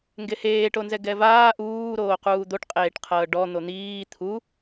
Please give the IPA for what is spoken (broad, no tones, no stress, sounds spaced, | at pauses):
ŋ ɡ e h eː ʈ o n z ɛ ɡ ɛ v aː ʔ uː ɾ oː q uː d̪ o ʈ qʼ eː ʈ qʰ ɤː ɖ ɔ n̪ o n̪ iː t̪ʰ u